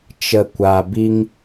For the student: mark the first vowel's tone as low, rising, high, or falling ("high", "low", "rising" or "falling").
low